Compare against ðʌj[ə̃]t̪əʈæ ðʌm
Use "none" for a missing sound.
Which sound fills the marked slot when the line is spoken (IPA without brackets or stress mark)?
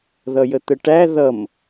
ə